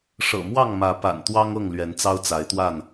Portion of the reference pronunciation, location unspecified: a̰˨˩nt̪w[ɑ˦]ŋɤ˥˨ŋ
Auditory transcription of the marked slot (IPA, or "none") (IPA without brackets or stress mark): ɑ˦